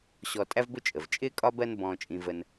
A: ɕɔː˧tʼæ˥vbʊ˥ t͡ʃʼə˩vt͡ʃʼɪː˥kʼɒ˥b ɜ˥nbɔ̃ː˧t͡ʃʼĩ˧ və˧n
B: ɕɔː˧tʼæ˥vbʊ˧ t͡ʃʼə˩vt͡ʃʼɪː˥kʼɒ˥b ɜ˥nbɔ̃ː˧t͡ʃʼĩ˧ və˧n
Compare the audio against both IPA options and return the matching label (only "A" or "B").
A